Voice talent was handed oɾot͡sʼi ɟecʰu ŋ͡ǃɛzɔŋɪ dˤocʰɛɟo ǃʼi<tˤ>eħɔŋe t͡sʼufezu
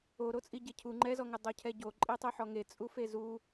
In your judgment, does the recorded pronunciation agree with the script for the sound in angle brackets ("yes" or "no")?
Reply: yes